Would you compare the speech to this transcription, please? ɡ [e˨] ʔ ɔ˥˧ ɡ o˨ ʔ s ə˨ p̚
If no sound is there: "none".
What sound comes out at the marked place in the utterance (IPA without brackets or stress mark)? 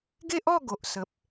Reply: e˦